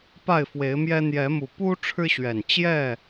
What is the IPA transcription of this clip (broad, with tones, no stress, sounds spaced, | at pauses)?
p a˥˨ ɪ̯ f w e˨˦ ɪ̯ m j ɛ˦ n̪ j ɛ˨˦ m u˨˩ p u˦ ʈ͡ʂʰ ɻ̩˦ ɕ ɥ ɛ˨˩ n t͡ɕ j ɛ˥˨